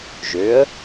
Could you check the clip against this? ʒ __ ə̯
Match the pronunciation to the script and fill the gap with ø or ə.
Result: ø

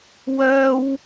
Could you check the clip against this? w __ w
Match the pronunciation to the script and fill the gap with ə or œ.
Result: œ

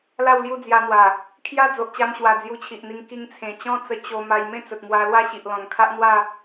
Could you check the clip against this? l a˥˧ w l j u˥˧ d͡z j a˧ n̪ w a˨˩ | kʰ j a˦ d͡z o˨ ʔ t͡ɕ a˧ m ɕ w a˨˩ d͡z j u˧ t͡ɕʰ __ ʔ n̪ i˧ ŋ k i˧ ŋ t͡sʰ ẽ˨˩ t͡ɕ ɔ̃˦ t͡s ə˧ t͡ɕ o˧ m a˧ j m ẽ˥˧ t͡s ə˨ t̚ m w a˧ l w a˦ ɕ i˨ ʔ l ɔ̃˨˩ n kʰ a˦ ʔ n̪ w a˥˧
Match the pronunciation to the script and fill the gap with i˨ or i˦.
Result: i˨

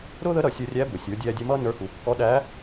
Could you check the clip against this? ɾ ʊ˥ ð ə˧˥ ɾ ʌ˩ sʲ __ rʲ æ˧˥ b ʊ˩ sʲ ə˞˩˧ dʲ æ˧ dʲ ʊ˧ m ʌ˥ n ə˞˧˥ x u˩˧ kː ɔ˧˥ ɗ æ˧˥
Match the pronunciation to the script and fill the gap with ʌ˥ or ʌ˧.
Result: ʌ˧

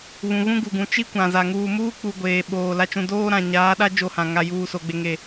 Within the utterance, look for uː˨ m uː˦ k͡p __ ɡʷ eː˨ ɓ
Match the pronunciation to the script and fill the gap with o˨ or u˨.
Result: u˨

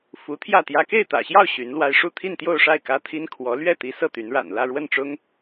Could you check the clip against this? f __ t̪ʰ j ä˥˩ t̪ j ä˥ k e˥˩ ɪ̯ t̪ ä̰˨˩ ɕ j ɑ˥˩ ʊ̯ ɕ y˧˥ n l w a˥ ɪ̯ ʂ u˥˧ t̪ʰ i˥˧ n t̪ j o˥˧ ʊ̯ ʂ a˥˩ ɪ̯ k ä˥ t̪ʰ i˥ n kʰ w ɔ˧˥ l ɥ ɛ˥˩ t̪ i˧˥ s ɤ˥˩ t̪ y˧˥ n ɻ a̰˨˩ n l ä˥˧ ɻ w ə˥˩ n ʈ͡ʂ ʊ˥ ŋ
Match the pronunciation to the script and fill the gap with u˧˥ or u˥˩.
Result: u˧˥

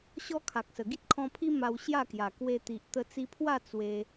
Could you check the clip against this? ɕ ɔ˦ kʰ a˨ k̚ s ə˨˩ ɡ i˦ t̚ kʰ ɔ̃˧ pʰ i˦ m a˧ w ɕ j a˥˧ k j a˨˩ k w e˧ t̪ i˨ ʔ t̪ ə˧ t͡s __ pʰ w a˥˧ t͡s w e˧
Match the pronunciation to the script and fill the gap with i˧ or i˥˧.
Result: i˧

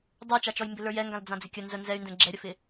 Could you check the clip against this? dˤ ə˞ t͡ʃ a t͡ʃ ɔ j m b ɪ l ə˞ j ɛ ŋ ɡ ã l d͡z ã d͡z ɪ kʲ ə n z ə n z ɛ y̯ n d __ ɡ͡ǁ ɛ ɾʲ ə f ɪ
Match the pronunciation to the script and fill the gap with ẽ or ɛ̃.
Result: ɛ̃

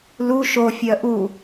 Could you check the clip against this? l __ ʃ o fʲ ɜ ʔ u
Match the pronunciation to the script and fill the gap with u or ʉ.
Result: u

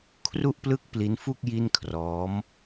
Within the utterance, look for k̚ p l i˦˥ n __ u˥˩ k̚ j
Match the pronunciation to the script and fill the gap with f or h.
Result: f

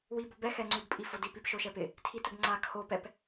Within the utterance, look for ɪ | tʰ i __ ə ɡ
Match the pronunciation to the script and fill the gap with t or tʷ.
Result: t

